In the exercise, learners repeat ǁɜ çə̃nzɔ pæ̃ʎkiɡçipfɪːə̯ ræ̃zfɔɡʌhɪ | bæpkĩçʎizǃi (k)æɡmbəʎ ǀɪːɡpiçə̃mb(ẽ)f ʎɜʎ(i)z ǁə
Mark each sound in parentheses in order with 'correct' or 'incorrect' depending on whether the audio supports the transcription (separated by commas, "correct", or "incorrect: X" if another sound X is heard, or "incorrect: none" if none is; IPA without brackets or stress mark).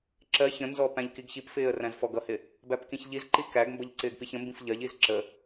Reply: correct, incorrect: ĩ, correct